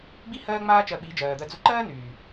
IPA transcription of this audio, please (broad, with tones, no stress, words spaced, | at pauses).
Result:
ɡ͡bi˦ hɜː˦ŋ͡maː˦ t͡ʃɜ˧ɓi˨˦d͡ʒɜː˨d̪ɜ˧ d͡zʊ˧ǃɜː˦nyː˨